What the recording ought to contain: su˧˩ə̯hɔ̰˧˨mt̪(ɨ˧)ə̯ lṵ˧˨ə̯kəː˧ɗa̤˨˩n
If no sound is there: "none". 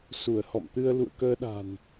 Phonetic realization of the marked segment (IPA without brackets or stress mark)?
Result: ɨ˧